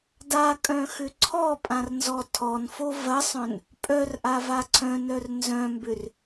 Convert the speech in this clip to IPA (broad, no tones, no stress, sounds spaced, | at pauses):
d a kʼ œ̃ x ʏ ǀʰ ɔ pʼ ã r n z ɔ tʰ ɔ n f o v ɐ sˤ œ̃ n | pʼ œ r ʔ a v a ǀʰ œ̃ n œ r n z œ̃ m b ʏ r